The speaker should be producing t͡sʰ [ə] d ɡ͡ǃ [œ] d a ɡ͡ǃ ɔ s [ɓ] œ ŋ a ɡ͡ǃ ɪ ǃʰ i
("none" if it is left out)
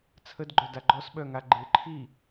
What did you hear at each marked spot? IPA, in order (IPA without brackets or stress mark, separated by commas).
ə, œ, ɓ